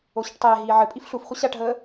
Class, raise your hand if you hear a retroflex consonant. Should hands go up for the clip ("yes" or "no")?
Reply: yes